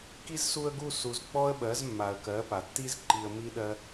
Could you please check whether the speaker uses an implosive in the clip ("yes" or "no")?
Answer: yes